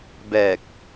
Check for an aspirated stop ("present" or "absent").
absent